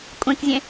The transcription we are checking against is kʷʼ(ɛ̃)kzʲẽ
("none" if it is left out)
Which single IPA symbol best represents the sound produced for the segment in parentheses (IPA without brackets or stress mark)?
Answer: ẽ